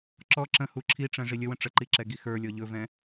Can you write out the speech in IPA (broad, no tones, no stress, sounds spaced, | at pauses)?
ǁ ɔ ǁ ə̃ h u ǁʰ i ʈ͡ʂ ɛ̃ ʐ i lʲ ə w ə̃ ʈ͡ʂ ə ǃ i ǁ ɛ ɡ i x ə˞ lʲ ɔ ʎ ɵ v ɛ̃